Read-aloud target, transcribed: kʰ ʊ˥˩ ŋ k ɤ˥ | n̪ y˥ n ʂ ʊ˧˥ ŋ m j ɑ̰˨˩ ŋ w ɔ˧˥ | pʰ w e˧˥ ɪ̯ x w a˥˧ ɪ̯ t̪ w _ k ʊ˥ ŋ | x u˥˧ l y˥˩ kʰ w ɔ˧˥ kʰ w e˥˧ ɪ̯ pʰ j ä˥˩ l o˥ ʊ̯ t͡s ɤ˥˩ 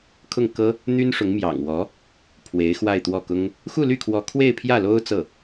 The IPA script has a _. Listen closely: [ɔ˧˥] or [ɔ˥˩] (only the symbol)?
ɔ˥˩